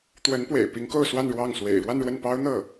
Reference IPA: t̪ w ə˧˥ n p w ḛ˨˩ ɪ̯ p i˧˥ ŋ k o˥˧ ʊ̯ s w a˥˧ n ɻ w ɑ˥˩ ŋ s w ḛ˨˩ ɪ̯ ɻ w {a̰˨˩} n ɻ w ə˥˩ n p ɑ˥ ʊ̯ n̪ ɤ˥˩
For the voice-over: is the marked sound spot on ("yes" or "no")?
no